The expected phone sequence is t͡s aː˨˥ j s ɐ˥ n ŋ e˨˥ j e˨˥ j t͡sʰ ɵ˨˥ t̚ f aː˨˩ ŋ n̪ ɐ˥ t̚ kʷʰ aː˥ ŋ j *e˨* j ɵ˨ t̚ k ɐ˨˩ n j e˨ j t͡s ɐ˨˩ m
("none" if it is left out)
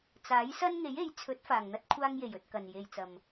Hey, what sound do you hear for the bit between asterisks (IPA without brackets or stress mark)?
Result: e˨˩